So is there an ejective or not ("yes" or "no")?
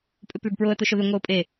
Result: yes